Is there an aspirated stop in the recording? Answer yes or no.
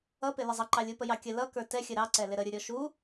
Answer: no